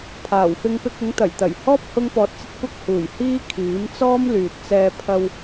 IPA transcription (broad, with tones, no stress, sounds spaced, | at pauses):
pʰ aː˨˩ w f ɪ˧ ŋ p ɪ˧ k̚ ɪ˨˥ ŋ t̪ ɐ˨˩ j t̪ ɐ˨˩ j h ɔː˥ p̚ h ʊ˥ ŋ p ɔː˧ t̚ t͡s ɐ˥ t̚ kʷ ɐ˥ k̚ h uː˨˩ j h iː˥ kʰ iː˨˥ m t͡s ɔː˥ m l yː˨ t̚ t͡s ɛː˧ pʰ ɐ˧ w